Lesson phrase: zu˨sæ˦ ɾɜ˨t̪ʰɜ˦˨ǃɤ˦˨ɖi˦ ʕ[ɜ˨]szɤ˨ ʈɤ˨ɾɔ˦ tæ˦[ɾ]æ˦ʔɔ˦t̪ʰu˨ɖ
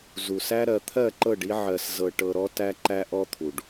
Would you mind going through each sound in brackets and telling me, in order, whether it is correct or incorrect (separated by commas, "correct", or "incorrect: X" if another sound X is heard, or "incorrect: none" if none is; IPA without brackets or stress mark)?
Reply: correct, incorrect: ǃ